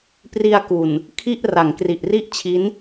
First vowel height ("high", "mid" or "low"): high